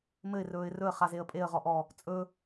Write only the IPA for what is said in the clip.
mɘɪ̯ rɵːɪ̯rɵə̯ χazeə̯pʼeə̯ ʁɔʔɔ | t͡sʼɵ

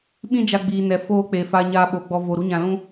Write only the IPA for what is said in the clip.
ɓĩ˦d͡ʒa˧ ɡ͡biː˨nɛ˨ foː˦k͡pe˧ fa˧ɲaː˧ɓo˨ɡ͡bɔ˧ vo˧ ɾu˦ɲã˧lũ˦

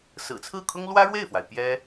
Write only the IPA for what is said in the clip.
sɹ̩˨˩t͡sʰɹ̩˥˩kʰʊ˥ŋ lwä˥ɻwe˥˩ɪ̯fwa˩ɪ̯ pjɛ˥

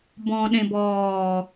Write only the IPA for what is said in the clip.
bɔ̃ ɗẽbɔː

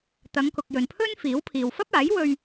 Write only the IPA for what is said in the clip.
t̪ɐ˨˧ŋkʊ˨k̚jɵ˨npʰɵ˥n fiː˨˥wpʰiː˨w fɐ˥p̚aː˨˥jwɵ˧ɥ

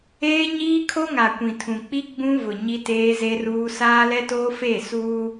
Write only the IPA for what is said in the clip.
eː˦ɲiː˦kʰo˦ŋa˨ kʷĩ˨tʰũ˨k͡pi˦ ɡ͡bũ˦vʊ˨ ɲi˦teː˦ze˦ruː˦ saː˦lɛ˦toː˦ feː˦˨suː˦

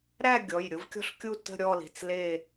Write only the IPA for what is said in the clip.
ɾæ˥˧ ɡʲɔ˩˧˩jɾʲʊ˥vkʲɔ̤˥ɬkʲu˥˧ tə̤˥˧ɾʲɔ˥˧li̤˩˧˩t͡s le˥˧

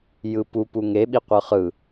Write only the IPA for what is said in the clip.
jɯpu puŋe ɓiqʷɯχɯ

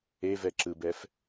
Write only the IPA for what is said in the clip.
evɛ ǁɯbɛf

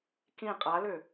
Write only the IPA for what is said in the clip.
kĩ qʼalø

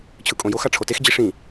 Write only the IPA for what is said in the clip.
t͡ɕʰɯkʼõjox aʈ͡ʂʰotex d͡ʑiʂĩ

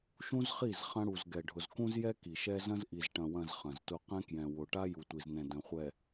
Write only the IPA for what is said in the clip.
ʃũ˦zχi˦˨z χɐ̃˦ɽu˨z ɡɛ˨ɖʱʊ˨zkũ˦zjɛ˦ ki˨ʃɛ˦ zɐ̃˦zʔi˨z ʈɐ̃˨wɐ̃˨z χɐ̃˨ztʊ˦ qɛ̃˦kjɛ̃˨wʊ˨ ʈa˦ju˨tʷi˨znɛ̃˨ dɐ̃˨χʷɛ˨

